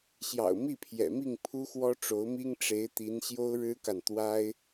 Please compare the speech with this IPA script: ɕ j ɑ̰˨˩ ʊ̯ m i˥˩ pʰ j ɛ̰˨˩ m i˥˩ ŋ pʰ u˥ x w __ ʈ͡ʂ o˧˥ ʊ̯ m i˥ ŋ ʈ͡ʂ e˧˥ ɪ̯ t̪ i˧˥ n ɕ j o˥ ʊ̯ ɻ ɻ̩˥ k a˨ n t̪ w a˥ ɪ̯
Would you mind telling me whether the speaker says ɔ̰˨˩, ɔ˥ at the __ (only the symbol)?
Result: ɔ˥